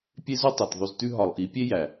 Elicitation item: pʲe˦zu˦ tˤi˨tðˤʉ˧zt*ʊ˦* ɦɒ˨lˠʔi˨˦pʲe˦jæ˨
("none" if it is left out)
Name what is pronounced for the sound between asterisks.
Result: ʉ˦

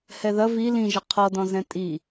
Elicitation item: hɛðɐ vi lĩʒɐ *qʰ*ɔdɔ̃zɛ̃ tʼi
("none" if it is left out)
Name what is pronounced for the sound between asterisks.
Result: qʰ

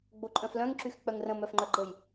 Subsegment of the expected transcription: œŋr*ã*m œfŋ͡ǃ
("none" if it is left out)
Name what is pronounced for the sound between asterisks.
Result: ə̃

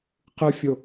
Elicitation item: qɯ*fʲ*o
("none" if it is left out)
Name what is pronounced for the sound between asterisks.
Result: fʲ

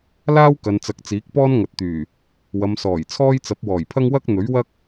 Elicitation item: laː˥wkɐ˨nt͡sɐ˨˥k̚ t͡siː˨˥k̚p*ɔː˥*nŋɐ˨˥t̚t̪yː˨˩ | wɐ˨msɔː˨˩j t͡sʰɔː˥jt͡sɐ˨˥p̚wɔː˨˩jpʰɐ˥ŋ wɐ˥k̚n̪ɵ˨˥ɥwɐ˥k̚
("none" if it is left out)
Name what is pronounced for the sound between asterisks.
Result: ɔː˥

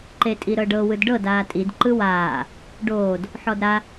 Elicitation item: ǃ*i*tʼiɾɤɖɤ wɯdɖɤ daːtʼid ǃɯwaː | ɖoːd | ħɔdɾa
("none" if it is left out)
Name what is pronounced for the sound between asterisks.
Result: e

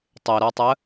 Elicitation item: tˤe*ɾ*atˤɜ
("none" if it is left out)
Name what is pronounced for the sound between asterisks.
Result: ɾ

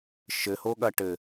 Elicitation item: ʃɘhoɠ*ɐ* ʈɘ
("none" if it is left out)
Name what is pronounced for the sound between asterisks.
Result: ɐ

